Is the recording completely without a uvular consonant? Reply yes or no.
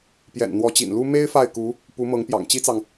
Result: yes